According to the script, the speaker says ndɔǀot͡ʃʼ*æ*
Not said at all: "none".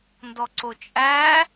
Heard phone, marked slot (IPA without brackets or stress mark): æ